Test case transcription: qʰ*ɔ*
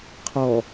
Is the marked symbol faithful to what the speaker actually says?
yes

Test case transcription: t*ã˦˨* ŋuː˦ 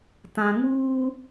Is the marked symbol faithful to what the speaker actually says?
no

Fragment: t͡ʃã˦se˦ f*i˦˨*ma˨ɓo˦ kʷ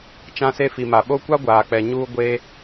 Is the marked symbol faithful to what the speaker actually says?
no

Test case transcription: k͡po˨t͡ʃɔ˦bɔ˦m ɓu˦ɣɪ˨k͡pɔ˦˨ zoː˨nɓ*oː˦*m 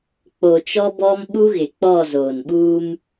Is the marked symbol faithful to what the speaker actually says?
no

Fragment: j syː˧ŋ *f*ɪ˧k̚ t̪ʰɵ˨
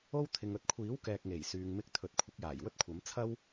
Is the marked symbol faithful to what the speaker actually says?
no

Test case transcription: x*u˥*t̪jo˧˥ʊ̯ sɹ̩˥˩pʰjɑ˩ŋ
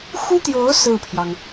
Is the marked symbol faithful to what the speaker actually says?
yes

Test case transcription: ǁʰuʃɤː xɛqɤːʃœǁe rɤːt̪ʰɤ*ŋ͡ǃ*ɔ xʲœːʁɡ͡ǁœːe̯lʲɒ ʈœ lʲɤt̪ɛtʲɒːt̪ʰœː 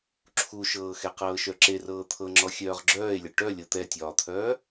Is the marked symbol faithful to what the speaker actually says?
no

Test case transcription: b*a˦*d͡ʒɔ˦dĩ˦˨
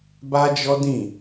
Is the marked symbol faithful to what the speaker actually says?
yes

